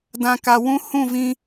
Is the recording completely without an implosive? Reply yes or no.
yes